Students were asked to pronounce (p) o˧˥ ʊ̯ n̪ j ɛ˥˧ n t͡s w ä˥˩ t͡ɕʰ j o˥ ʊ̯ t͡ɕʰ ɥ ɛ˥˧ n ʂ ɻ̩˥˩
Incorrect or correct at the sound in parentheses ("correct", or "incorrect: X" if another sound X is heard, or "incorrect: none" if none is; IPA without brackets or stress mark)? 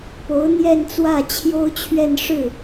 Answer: correct